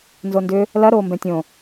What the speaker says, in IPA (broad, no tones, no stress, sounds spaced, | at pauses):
n z o n d ʏ | l ɐ ɾ oː m b ɛ̃ tʲ õ